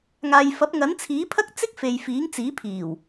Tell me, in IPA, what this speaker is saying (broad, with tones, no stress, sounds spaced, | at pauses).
ŋ aː˨ j f ɐ˨˥ p̚ ŋ ɐ˨˥ n t͡sʰ iː˨˥ pʰ ɐ˥ k̚ t͡s ɪ˥ k̚ f e˨ j f iː˨˥ ŋ t͡s iː˨˥ pʰ iː˨˩ w